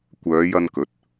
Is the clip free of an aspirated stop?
yes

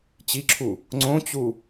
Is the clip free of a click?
no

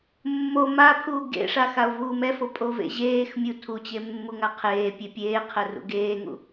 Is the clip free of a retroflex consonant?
no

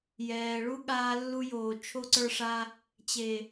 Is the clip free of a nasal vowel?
yes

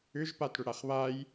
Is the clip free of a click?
yes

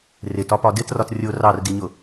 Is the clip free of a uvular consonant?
yes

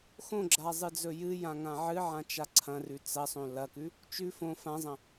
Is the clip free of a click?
no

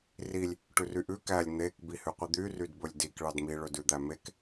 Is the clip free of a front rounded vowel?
no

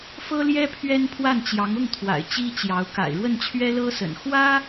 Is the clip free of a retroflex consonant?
no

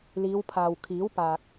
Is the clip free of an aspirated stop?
no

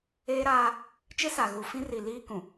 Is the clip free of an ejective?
yes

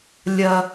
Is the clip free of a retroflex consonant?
yes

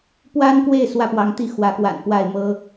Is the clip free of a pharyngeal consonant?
yes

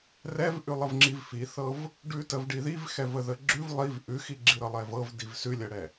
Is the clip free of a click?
no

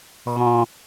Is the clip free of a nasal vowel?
no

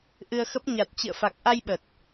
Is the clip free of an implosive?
no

